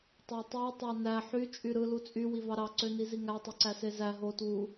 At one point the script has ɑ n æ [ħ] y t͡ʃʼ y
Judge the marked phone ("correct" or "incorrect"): correct